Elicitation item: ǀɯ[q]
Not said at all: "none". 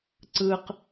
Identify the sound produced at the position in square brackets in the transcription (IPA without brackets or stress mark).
q